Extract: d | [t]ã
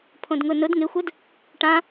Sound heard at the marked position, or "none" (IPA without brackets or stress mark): ʈ